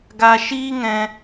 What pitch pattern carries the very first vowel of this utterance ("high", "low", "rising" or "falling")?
low